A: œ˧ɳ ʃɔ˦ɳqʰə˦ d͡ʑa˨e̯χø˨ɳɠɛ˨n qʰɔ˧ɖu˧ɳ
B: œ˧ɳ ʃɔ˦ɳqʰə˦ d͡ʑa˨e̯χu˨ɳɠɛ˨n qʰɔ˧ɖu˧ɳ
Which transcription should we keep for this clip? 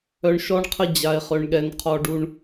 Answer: A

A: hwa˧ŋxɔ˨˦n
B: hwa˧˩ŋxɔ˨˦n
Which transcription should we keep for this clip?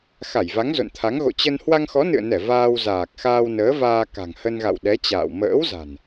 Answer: A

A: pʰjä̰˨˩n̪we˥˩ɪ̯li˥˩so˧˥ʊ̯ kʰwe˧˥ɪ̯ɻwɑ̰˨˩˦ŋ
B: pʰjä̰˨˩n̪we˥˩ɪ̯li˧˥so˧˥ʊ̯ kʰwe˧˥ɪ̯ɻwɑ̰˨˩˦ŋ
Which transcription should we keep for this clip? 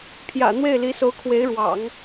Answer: B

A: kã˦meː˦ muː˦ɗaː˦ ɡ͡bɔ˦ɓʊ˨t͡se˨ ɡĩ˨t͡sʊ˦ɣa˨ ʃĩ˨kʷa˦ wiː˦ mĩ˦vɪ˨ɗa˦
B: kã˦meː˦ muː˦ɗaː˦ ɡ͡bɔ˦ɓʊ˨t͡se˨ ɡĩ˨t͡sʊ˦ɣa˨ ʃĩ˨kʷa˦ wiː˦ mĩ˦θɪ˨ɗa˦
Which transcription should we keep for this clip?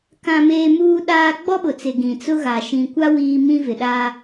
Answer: A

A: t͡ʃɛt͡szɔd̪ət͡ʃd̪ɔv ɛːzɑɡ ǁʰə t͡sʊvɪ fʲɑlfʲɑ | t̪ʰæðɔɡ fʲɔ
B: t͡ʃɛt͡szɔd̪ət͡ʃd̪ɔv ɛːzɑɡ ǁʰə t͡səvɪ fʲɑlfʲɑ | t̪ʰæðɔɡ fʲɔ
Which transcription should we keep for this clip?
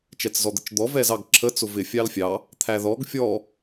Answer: A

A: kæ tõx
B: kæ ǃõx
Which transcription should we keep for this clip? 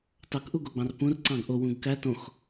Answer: A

